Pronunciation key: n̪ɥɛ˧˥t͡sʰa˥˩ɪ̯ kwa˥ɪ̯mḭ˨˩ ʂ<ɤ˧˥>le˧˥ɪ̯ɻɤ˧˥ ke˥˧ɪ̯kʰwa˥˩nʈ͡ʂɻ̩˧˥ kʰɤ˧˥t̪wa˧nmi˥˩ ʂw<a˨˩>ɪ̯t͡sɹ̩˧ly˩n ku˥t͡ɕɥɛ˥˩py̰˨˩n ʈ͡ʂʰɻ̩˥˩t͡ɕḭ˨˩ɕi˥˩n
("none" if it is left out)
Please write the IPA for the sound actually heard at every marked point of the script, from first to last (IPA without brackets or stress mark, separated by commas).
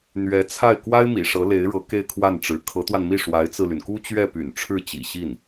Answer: ɤ˧˥, a˧˥